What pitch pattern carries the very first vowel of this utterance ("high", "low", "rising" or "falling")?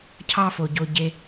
high